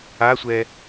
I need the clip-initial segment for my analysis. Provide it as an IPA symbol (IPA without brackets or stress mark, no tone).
a